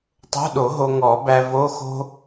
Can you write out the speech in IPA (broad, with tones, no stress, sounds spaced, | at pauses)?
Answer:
tˤ o̤˧˥˧ ɗ o˨˩˦ ɦ o˧ ŋ ɔ˨˩˦ b æ˧ v o˧˥˧ x o̤˥